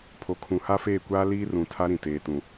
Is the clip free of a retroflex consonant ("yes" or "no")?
yes